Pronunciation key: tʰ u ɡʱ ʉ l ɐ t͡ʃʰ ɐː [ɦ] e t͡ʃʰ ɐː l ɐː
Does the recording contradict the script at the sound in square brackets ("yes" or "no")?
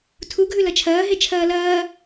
no